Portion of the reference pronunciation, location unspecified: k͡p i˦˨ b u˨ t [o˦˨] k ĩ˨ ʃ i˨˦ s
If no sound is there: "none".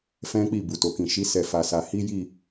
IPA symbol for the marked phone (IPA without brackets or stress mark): o˨